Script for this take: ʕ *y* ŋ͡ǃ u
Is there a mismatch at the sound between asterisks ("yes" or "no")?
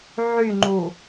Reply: no